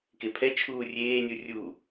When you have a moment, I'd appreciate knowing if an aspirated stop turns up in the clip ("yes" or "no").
yes